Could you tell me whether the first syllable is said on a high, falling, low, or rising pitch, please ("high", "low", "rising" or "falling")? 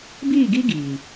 falling